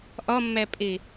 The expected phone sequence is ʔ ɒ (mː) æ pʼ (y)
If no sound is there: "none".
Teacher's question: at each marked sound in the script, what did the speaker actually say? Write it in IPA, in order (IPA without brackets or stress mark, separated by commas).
mː, e